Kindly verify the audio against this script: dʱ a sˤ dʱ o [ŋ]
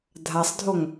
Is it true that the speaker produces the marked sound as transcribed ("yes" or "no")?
yes